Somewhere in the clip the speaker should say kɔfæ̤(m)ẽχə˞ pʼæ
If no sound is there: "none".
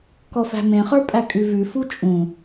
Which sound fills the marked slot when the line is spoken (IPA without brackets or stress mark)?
m